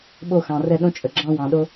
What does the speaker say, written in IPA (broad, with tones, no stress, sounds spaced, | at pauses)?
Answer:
ɓ o˦˨ x ɑ̃˨ r ɛ˦˨ ɗ õ˦ t͡ʃʼ ə˨ ɡ͡ǁ ɑ̃˦ w ɑ̃˨ ɗ o˦